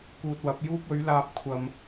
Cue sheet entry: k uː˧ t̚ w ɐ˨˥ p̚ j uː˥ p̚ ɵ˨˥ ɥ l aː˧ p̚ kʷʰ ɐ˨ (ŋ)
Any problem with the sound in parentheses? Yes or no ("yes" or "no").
yes